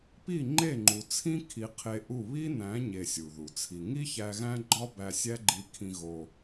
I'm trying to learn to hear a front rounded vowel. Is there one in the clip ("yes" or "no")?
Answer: no